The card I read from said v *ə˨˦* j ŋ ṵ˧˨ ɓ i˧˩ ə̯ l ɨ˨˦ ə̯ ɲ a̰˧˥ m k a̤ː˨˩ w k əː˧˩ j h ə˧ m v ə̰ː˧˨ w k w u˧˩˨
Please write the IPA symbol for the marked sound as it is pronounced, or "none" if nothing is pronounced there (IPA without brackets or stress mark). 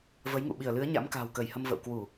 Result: ə˨˦